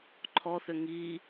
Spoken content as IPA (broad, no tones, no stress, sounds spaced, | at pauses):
ǃʰ ɔ θ ʏ ŋ i